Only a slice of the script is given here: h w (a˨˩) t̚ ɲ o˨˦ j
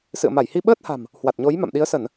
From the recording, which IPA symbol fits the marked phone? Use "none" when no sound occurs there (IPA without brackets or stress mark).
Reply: a˨˩